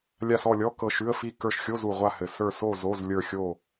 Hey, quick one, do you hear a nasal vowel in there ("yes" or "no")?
no